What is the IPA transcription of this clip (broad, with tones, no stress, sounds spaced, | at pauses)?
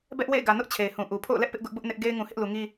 b ɛ˦ ʔ w ḛ˦˨ ɪ̯ ɡ ä˨ n ʊ˦ ʔ t͡ɕʰ e˨ ɪ̯ h ũ˨ ʔ u˨ pʰ o̰˦˨ ʊ̯ l ɛ˦ ʔ p ɪ˦ ʔ ɡ ʊ˦ ʔ b ʊ˦ ʔ n ɪ˦ ʔ ɡ e˦ ɪ̯ ŋ ũ˨ h ɪ˦ ʔ l u˨ ŋ i˦